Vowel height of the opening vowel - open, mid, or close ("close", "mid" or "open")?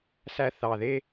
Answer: open